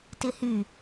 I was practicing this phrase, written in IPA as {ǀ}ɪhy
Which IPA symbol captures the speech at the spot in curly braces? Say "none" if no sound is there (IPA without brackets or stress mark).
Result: t